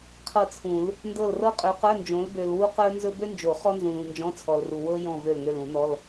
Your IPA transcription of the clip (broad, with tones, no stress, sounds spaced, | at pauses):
qʰ ɤ˦˨ t͡sʰ ũ˨˩˦ l | n d ɤ˦˨ l r ɤ˥ qʼ ø˨˦ q ə˞˧˥˧ n d͡ʒ õ˨˦ l b ø˨ l w u˥ q ə˞˥ n z ɵ˥ b ø˥ n d͡ʒ o˨˩˦ χ ɔ˥ n z ũ˨ l ũ˨ n d͡ʒ ɔ̃˧˥˧ t͡sʰ ɔ˨ l r u˨ w ɤ˥ j ɔ̃˦˨ v ø˦˨ l ŋ ø˦˨ l ũ˨˩˦ n ɔ˧˥˧ l